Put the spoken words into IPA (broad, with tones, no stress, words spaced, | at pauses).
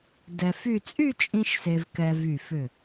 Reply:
dɛ˧fy˥˧ t͡sʼy˥˧ t͡ʃʼĩ˥ʃse˧vkɛ˧ vy˧˩fʏ˧˩